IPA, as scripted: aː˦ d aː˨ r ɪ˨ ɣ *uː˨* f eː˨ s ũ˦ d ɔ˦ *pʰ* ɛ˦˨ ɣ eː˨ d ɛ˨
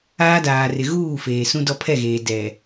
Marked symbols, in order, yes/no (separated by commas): no, yes